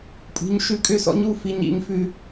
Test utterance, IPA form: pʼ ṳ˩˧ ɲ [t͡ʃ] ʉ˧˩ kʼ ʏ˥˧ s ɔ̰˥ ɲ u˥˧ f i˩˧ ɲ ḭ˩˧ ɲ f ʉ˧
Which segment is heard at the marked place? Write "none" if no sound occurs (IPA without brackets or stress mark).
ʃ